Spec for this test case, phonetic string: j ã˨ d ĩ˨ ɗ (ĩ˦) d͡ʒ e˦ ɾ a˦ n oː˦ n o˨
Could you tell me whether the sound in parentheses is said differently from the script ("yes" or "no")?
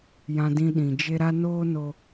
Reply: yes